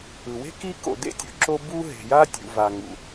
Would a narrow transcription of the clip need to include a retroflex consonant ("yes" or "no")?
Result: no